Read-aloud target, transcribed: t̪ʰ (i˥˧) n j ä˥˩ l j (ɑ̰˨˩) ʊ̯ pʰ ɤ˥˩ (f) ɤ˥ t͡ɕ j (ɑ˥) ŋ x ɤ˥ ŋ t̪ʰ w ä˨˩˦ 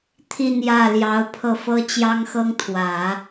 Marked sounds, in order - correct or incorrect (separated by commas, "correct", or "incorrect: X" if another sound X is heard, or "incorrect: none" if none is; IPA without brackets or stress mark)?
correct, incorrect: ɑ˧˥, correct, correct